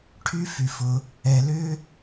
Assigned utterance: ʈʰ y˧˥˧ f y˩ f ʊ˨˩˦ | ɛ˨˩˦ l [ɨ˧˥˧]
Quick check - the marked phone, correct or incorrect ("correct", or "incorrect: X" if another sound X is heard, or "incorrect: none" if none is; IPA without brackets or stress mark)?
incorrect: ʏ˧˥˧